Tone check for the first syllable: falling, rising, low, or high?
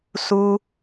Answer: high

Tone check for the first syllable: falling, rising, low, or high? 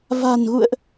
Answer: low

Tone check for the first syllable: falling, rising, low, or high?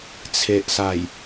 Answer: low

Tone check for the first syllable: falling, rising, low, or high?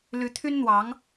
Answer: rising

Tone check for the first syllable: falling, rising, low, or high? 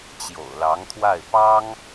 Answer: low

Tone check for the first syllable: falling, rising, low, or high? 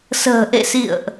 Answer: low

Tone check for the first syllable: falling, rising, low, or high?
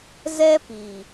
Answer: high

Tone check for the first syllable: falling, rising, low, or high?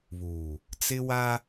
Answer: low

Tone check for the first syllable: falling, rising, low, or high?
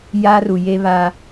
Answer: high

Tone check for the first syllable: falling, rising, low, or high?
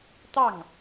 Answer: falling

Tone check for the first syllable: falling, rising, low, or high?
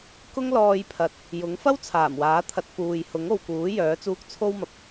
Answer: high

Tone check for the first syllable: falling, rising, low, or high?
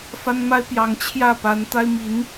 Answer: high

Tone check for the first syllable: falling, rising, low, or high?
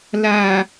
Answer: low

